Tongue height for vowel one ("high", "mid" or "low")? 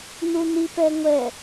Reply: high